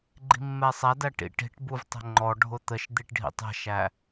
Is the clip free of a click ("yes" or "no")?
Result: no